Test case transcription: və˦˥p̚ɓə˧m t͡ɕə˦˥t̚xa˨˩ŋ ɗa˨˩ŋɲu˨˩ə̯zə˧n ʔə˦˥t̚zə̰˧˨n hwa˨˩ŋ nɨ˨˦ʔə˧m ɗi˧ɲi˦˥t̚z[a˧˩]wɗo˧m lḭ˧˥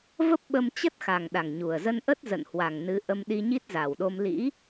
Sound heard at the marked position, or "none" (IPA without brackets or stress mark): a˨˩